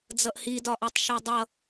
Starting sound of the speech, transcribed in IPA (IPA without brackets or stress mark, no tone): d͡z